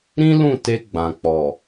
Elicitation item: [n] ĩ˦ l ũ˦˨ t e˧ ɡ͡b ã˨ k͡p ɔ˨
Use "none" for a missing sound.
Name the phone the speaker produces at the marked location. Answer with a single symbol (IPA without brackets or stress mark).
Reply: ɾ